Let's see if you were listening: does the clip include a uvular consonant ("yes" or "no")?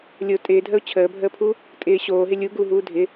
no